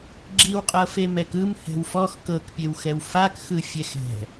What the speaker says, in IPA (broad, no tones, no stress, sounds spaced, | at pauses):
ɡ͡ǁ i w qʼ ɤ f e m ɛ k ɯ m h ɛ̤ w f ɔ x k ɤ k pʲ e w x ɛ w f a k x ɯ fʲ ɛ x ɛ̤